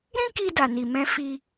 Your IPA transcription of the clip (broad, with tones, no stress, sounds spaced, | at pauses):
ɾ ĩ˦ k i˧ d a˨ n i˨ m ɛ̃˧ f i˧